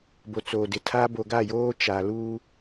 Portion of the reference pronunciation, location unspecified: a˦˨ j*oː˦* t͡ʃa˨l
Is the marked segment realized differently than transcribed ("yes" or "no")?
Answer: no